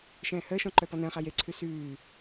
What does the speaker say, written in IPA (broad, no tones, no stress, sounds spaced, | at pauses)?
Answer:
ʃ ɛ̃ː h əː ʃ ɔ̃ ǃ œ p ɔ n ə̃ː χ a j e ǀʰ ʉ s ʉː